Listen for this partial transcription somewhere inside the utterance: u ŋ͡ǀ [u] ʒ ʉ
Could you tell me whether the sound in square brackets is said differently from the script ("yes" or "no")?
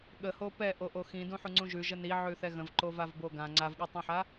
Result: yes